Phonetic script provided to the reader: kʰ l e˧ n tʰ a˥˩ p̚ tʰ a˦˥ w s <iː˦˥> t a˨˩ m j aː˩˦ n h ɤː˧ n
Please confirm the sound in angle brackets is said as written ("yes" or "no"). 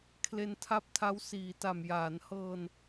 no